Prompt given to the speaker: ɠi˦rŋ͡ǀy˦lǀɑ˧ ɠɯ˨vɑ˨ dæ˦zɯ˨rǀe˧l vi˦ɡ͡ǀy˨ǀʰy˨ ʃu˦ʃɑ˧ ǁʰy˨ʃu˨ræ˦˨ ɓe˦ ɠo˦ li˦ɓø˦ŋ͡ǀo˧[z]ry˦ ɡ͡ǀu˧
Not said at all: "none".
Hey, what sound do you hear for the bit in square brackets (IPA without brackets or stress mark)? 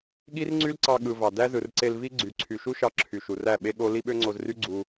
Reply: z